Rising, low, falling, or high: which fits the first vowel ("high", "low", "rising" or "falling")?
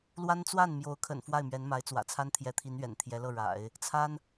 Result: high